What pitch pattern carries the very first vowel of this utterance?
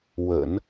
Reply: low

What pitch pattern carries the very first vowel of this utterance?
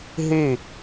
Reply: falling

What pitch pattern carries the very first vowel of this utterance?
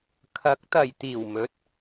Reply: rising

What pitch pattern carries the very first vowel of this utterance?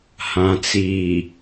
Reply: low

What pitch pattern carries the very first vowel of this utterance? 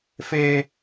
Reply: high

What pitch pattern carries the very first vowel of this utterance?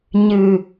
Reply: low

